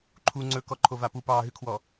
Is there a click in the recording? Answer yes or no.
yes